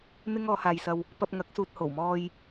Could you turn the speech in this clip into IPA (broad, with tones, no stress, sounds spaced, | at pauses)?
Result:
n̪ ɪ˥ ŋ ɔː˨˧ h aː˨ j s ɐ˧ w | p ɐ˧ p̚ ŋ ɐ˨˥ k̚ s uː˨ t̚ h o˨˩ w m ɔː˧ j